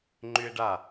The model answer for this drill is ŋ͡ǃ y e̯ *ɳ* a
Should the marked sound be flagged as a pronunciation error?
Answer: yes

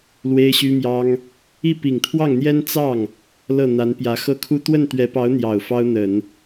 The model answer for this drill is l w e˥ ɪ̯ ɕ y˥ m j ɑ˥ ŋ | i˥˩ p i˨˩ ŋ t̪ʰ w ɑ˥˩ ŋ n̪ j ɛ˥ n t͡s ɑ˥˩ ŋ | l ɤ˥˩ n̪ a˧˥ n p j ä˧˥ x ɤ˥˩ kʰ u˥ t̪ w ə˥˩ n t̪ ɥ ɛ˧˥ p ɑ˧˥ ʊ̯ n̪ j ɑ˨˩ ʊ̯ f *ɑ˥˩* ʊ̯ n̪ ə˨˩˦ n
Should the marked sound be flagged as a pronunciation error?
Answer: yes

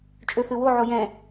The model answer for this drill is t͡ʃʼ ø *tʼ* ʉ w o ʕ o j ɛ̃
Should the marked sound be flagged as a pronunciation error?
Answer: yes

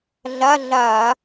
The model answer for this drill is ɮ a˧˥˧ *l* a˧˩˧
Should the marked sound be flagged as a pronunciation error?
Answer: yes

